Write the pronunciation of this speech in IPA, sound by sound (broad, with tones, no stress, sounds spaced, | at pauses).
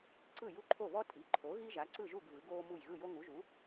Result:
ǀ ɯ˥˩ j u˥˩ ǃʰ o˥˩ β ɔ˥ tʼ i˩˥ ǃʰ o˩˥ ɣ i˥ ʒ a˩˥ ǀ ɯ˥˩ ʒ u˥˩ ɡ v ɯ˩˥ ɡ oː˥ m u˥˩ j ɣ ɯ˥˩ j o˥ ŋ u˩˥ ʒ u˩˥